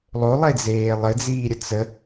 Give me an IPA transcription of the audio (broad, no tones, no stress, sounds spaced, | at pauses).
lˠ o lˠ e d͡z eː lˠ ɘ d͡z iː ɾʲ ə t͡s ə